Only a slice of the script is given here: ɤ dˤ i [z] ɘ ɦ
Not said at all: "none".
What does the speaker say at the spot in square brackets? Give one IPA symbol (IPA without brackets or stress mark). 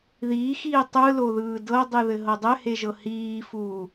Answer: ð